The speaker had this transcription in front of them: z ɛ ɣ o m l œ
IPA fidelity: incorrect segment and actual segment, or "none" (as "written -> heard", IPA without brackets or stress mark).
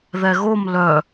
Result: z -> ð